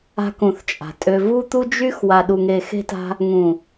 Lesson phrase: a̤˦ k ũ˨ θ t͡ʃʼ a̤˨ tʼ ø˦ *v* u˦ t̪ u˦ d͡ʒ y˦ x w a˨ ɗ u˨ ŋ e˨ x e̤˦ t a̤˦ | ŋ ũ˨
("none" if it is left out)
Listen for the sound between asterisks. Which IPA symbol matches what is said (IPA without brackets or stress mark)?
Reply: v